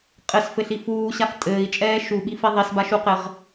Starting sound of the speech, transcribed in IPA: qʼ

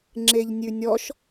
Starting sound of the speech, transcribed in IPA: ŋ͡ǁ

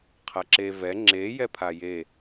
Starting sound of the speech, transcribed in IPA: qʰ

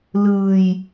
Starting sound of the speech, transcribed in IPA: l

